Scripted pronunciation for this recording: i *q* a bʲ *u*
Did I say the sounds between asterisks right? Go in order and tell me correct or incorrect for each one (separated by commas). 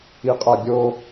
incorrect, incorrect